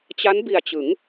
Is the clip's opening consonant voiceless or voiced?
voiceless